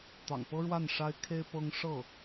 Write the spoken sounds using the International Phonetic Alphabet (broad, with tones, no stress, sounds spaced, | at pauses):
t̪ ɑ̰˨˩ ŋ p ɤ˥ ɻ w a˥˩ n ʂ a˥ ɪ̯ kʰ e˥ ɪ̯ p ɤ˥ ŋ ʂ ɤ˥˩